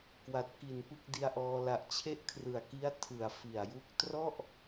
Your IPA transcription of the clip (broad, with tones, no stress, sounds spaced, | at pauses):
k w a˨˩ t̚ k i˨˩ n p ɯ˥˩ k̚ d i˧ a̯ ʔ ɔː˧ l a˨˩ ʔ t͡ɕʰ e˥˩ ʔ kʰ r ɯ˨˩ a̯ k i˦˥ a̯ tʰ ɯ˨˩ a̯ f i˨˩ a̯ j u˥˩ k̚ t r ɔ˥˩ ʔ